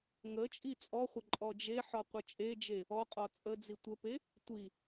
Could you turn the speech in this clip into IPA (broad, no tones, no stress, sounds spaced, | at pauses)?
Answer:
ŋ ə t͡ʃʼ i t͡sʼ ɔ χʷ ə ǃʼ ɔ d͡ʒ e ħ ɔ qʷ ɘ t͡ʃʼ e d͡ʒ e | ɔ qʼ ɔ t͡sʼ ə d͡z i tʷ ə p e | tʷ i